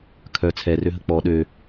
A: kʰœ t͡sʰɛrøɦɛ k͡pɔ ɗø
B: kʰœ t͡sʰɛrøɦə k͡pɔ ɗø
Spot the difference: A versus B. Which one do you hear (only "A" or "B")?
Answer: B